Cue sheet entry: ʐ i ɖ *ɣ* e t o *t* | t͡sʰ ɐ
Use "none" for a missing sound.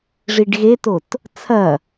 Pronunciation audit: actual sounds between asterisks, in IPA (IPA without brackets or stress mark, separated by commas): ɣ, t